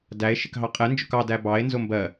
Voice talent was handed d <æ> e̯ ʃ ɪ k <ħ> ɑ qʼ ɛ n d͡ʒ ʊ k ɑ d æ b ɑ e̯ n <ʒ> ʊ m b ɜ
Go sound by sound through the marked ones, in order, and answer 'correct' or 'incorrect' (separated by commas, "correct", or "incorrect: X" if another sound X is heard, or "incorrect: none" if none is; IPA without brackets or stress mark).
correct, incorrect: ɦ, incorrect: z